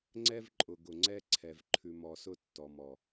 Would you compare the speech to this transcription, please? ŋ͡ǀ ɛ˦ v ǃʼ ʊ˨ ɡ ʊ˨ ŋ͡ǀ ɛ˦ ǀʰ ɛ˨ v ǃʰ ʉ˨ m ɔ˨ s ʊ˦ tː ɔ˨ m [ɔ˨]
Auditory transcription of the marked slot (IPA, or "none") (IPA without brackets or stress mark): ɔ˨